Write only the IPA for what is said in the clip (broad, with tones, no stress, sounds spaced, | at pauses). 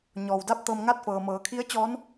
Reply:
ɲ ɔː˩ w d a˥˨ p̚ t̪ ɤː˧ m ŋ aː˥˨ t̚ f ɤː˩ m ɤː˩˧ kʰ i˧˥ ə̯ t͡ɕ ɔː˧˥ n